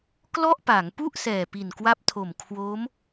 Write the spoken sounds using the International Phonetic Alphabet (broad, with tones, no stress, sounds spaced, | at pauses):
k l ɔ˥˩ ʔ p a˩˦ ŋ p u˥˩ ʔ s ɛː˨˩ p i˨˩ n k w a˦˥ p̚ tʰ o˨˩ m kʰ w o˦˥ m